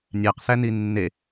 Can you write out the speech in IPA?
nʲ æ q s æ n i nː e

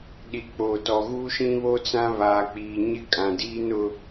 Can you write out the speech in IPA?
ɗ i˨ k͡p oː˨ t ɔ˨ ɣ uː˦ ʃ ĩ˦ β o˦ t͡s ã˦ β aː˨ k͡p iː˨ ɲ ɪ˦ kʼ ã˨ d iː˦ n ʊ˦

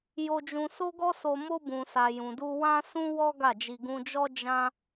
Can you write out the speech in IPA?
j o˧ d͡ʒ ũ˧ s o˦ ɡ ɔ˦ s o˧ m o˧ b ũ˨ s a˨ j ũ˨ d u˧ w ã˦ s ũ˦ w ɔ˦ ɡ a˦˨ d͡ʒ i˧ ɡ ũ˧ d͡ʒ ɔ˦ d͡ʒ ã˦

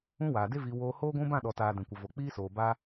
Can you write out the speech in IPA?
ũ˦ w aː˨ d e˦ v i˧ w oː˧ h oː˦ ɡʷ ũ˦ b ã˦˨ ɗ ɔ˨ t aː˨ d ɛ̃˨ kʷ ə˨ v o˨ k͡p iː˦ s oː˨ b aː˦

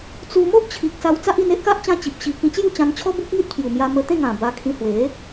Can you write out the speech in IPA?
t͡s u˧ m o˦ ʔ t͡ɕʰ i˨ k̚ s a˧ w t͡s a˦ ʔ i˧ n e˦ ʔ k a˦ ʔ t͡ɕ ã˧ t͡ɕ i˨ p̚ ɕ i˧ k ĩ˧ t͡ɕ j u˥˧ t͡ɕ ã˧ n t͡ɕʰ ɔ˦ b u˦ k̚ ŋ i˦ t̚ pʰ j u˨˩ m j a˧ m ə˧ t̪ ẽ˥˧ ŋ ã˨˩ b a˧ kʰ ĩ˧ h w e˨˦

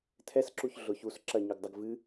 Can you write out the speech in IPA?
tʰ ɛ s ǁ u ç ɮ ʊ ç u s ǁ ɐ ɲ ʊ ɡ dˤ ɐ ɡ v ɨ

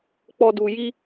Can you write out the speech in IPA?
k͡p ɔ˧ d u˨ j i˧

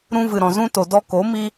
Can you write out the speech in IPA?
ɾ ũ˧ v ɨ˨ ɾ ɔ̃˨ z ũ˧ t o˨ d ɔ˧ k o˨˦ m i˦

